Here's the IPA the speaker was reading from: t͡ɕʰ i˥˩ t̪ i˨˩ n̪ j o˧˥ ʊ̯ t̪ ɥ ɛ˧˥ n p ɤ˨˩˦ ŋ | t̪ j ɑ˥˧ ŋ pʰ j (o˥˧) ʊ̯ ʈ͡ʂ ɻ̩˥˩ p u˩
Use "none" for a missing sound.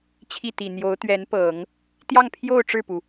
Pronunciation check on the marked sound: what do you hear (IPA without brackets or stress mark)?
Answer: o˥˧